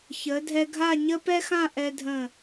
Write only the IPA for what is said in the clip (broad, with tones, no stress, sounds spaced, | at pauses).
ç ə˩˧ dʱ ɛ˧ ɡʱ a˥˧ ɲ ə˥ p ɛ˥ x ã˥˧ ʔ ɛ˧ dʱ ə̃˧˩